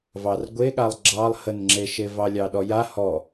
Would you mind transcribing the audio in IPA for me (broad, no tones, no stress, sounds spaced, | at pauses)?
v ɑ r ɡʷ e ɠ a lˠ ɡ͡ǁ ɑ lˠ h ə n ŋ͡ǁ e ʃ e v ɑ lʲ ɑ ɗ ɔ j a h ɔ